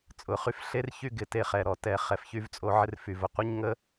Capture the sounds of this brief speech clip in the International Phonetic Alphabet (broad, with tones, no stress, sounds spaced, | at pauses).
t͡sʼ ʊ˨ χ y˧ f ɬ e˦ r ç y˦ ɡ ɪ˧ t e˧ χ ɛ˨ ɾ ɔ˨ t ɛ˨ χ ɛ˨ f ç y˧ v t͡sʼ o˧ ʕ ɪ˧ r f y˨ v ʊ˨ qʷ ɪ˦ ɲ ŋ ə˦